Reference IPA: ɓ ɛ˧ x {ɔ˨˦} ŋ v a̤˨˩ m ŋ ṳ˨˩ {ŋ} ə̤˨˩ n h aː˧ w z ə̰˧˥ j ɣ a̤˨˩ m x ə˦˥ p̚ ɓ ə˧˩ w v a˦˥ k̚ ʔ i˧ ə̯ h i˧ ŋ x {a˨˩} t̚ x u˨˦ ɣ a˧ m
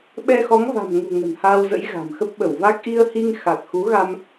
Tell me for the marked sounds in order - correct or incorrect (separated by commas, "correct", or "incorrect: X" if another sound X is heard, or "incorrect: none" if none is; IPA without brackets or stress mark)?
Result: correct, correct, correct